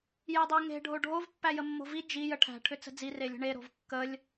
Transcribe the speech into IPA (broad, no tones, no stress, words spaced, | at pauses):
jedˤeŋe̤ ɖʱoɖʱov pːæjəmːo̤vi d͡ʒi jəʈʰæ̤ ʈʰʏt͡sə̤d͡zi relʲə̤ɳe ɾo̤vkːəlʲ